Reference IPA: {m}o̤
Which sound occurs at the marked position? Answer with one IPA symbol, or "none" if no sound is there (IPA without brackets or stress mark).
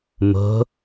m